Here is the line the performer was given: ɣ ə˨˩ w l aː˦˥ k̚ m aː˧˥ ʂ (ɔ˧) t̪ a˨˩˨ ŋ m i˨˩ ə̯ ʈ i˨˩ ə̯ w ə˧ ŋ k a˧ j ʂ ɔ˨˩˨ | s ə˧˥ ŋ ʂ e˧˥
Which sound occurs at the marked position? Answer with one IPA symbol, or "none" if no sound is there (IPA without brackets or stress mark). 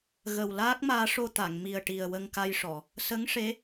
o˧